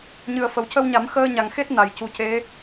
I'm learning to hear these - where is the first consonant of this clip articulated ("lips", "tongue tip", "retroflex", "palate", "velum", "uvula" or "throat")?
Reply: palate